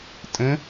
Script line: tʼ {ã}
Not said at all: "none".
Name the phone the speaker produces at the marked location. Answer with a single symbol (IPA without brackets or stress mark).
ə̃